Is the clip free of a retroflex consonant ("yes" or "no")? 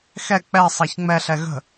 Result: yes